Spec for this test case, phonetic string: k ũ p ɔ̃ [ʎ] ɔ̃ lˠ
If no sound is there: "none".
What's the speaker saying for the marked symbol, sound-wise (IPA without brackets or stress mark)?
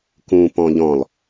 ʎ